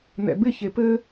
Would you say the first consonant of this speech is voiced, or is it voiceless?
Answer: voiced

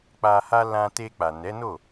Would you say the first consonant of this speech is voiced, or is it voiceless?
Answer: voiceless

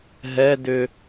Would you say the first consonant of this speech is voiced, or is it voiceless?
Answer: voiced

